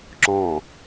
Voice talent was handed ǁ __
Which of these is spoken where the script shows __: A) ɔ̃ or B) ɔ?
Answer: A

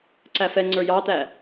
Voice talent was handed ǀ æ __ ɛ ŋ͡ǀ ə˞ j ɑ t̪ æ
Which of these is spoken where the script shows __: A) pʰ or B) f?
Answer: B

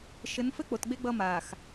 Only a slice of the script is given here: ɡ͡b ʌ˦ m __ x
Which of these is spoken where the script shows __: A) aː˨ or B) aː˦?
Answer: A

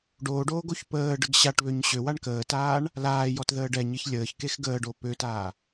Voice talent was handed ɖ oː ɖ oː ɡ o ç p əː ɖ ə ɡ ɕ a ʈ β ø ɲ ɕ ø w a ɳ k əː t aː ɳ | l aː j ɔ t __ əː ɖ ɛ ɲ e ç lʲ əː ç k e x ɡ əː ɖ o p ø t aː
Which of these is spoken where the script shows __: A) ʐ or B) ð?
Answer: B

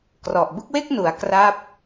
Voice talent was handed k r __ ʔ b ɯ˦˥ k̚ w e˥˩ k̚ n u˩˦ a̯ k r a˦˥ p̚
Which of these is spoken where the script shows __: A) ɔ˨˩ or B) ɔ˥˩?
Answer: A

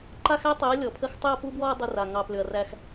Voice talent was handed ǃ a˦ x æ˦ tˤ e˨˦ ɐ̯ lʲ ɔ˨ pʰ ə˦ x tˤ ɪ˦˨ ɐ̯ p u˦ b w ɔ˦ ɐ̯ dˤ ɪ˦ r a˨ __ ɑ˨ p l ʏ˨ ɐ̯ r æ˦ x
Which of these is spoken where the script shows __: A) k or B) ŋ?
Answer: B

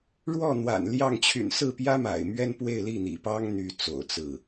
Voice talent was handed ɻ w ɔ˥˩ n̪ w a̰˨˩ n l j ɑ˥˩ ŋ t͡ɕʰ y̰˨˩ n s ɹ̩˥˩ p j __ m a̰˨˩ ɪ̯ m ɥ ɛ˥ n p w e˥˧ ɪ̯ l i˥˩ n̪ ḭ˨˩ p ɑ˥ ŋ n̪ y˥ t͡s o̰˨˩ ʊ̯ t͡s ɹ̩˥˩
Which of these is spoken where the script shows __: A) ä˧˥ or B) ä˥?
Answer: B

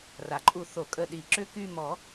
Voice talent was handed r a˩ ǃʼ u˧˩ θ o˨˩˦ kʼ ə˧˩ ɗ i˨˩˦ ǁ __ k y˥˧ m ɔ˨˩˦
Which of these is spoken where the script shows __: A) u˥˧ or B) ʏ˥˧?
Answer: B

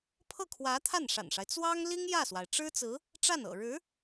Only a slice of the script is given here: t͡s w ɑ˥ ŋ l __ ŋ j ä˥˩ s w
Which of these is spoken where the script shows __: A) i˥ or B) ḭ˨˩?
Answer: A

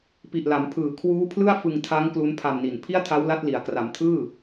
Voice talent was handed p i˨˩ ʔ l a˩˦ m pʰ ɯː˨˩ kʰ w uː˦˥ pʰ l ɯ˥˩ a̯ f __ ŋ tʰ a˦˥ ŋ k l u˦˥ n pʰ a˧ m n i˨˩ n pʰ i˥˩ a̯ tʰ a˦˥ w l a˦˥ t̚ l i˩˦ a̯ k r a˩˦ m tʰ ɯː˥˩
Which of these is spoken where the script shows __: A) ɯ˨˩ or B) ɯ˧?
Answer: B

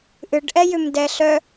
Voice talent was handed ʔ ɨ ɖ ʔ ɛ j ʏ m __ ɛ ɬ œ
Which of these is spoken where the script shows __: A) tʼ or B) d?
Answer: B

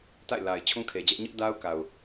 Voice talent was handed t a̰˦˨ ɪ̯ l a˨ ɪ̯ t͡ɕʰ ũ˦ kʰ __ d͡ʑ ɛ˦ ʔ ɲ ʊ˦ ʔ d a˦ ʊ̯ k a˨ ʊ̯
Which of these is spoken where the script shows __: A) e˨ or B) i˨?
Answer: A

